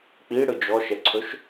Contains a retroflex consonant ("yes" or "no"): yes